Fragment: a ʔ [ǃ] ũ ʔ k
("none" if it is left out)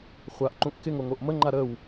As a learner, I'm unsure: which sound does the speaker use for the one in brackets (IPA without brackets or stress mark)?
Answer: ǃ